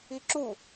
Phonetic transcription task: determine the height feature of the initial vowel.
high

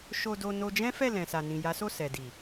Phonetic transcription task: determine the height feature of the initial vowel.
mid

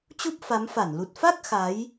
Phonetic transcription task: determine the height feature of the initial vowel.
high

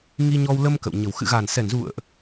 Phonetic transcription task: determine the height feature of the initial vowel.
high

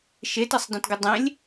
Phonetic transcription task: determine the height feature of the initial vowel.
mid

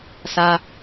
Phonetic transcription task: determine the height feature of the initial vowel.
low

